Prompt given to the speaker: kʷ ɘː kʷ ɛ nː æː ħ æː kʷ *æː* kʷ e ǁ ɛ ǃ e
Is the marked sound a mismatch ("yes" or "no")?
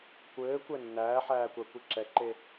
yes